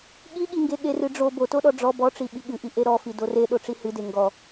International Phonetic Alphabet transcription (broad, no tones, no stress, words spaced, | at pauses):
ɠiɠiŋɡe ɠerɨɖ͡ʐo botoɗɔ ɖ͡ʐɔ bɔʈ͡ʂi ɓiɠɨʔi ʔeɾɔfi dore ɗoʈ͡ʂihɨde ŋɡɔ